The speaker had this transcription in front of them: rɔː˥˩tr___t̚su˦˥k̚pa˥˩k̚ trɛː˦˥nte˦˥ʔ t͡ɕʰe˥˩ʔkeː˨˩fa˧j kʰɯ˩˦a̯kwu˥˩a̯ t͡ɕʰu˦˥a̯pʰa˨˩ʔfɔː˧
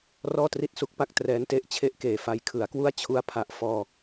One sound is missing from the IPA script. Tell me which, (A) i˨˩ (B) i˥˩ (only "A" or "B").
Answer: B